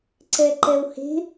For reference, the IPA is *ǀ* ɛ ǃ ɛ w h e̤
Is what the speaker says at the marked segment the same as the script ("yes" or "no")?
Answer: yes